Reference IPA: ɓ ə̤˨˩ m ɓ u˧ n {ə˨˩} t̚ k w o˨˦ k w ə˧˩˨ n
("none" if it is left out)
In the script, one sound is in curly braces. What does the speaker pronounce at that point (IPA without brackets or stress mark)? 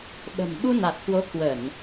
a˨˩